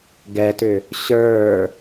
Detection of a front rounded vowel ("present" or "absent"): present